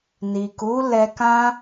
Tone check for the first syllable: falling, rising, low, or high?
low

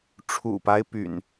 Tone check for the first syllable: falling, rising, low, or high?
low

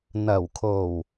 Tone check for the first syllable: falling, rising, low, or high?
low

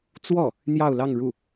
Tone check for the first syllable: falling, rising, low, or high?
falling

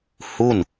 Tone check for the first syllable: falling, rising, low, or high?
falling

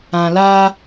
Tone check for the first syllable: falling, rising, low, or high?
low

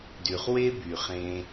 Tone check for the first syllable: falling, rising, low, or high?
low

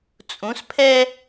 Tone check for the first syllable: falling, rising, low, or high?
rising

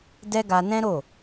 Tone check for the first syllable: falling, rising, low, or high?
high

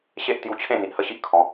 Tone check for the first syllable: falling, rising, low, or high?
high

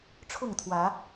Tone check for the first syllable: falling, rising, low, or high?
falling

